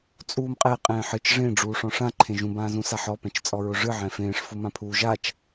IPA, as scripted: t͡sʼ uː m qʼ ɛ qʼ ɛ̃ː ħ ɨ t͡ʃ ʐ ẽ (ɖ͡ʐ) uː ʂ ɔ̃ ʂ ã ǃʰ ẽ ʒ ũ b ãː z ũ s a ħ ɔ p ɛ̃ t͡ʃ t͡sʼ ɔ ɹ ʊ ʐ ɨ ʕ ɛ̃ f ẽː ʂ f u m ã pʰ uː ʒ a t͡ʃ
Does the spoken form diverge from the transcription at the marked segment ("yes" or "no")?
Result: no